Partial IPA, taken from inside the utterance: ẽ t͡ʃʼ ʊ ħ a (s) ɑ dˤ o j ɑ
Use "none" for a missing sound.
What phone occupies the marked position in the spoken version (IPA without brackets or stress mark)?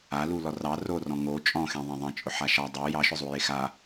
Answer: ʃ